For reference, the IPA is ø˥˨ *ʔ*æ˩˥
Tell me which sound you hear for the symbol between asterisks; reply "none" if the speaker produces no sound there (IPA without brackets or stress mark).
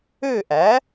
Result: ʔ